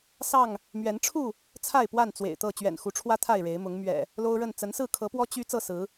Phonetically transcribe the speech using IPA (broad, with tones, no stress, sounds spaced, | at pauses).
s ɑ˥˨ ŋ | m ɥ ɛ˨˦ n ʈ͡ʂʰ u˥˨ | t͡sʰ a˥˨ ɪ̯ p w a˥˨ n t͡s w ḛ˨˩ ɪ̯ t̪ ɤ˥˨ t͡ɕ ɥ ɛ̰˨˩ n x u˨˦ ʈ͡ʂʰ w ä˦ t̪ʰ a˥˨ ɪ̯ ɻ e˨˦ ɪ̯ m ʊ˨˦ ŋ m ɥ ɛ̰˨˩ | l o˦ ʊ̯ ɻ ə˥˨ n t͡s ə˨˦ n s ɹ̩˥˨ kʰ ɤ˨˦ p w ɔ˦ t͡ɕ y˦ t͡s ɤ˥˨ s ɹ̩˨˦